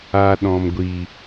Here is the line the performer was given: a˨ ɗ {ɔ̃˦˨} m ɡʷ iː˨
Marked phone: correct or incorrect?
incorrect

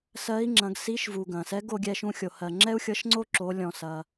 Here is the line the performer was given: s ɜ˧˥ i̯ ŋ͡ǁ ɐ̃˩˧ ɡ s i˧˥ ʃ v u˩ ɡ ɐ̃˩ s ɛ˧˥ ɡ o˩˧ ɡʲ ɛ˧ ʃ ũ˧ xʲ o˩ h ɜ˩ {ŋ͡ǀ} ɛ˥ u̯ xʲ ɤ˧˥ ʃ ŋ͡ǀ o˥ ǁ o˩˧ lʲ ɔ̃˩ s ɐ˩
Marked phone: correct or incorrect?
incorrect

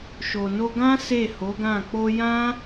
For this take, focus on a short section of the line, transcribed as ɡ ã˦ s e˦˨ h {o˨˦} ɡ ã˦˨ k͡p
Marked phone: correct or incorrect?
correct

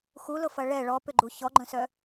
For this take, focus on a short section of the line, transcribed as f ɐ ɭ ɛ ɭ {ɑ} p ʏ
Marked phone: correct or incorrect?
incorrect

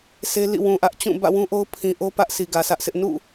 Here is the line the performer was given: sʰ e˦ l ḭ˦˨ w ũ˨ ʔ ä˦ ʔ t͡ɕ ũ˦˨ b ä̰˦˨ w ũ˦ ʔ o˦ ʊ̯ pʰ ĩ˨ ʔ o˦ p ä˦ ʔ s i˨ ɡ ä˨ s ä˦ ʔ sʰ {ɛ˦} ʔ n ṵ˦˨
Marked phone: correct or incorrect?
incorrect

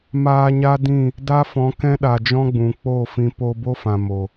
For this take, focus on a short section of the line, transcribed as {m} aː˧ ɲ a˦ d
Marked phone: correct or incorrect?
correct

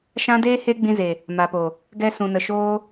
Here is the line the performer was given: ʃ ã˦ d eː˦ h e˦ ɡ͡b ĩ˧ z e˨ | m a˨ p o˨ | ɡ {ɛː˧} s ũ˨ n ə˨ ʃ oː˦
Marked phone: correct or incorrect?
incorrect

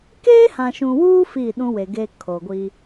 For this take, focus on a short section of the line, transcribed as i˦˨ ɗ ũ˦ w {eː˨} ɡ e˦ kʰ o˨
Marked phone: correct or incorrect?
incorrect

